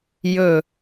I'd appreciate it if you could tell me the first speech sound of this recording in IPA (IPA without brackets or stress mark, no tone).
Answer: j